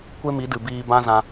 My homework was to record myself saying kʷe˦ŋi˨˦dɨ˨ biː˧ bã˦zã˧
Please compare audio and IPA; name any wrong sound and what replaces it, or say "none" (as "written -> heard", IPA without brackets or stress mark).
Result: ŋ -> m